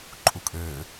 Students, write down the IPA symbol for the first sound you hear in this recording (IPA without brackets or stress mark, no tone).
ǃʼ